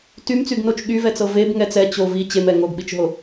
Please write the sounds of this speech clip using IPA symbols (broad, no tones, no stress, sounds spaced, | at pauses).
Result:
t y m t͡s y ɡ n o t͡ʃ ɠ y v ɛ t͡s ɤ v e b ŋ ɛ t͡s ɛ t͡ɕ o v i t͡ɕ e m ɛ ŋ o ɡ ɓ i t͡ʃ ɦ o